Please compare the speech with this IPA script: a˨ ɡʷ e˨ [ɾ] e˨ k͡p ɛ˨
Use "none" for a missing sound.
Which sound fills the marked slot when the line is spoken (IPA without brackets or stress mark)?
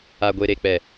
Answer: ɾ